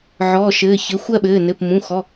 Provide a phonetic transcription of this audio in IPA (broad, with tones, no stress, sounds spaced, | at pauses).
ʕ ɔː˩˧˩ ʃ ɘː˩˧˩ ç ɘ˩˧˩ xʷ ɜ˥˧ ɓ ɘː˩˧˩ n ɘ˩˧˩ p m ũ˩˧˩ x ɔ˩˧˩